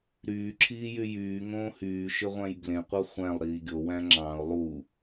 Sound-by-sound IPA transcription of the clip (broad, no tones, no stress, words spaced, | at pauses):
ɾyːǁʰiːjy jyːŋõː hyːʃøʁʷæ̃j blẽqʷɑ χʷæ̃lˠ ɾiːɡʲowæ̃ ŋ͡ǁɑ̃ʊ̯ lˠu